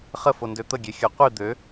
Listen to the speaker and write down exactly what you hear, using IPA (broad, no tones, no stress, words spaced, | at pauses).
χəfondø t̪əɡʲexʲœ qʷi d̪ø